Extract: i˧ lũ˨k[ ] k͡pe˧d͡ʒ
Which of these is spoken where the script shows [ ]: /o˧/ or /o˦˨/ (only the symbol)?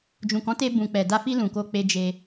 o˧